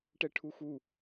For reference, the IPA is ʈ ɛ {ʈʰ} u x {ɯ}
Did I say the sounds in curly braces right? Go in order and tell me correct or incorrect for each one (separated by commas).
correct, incorrect